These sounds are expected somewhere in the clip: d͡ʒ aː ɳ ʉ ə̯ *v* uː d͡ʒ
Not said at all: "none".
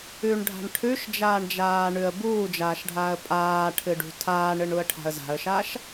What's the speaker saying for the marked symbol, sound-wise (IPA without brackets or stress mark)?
b